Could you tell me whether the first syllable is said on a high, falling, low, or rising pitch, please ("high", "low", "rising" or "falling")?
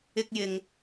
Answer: high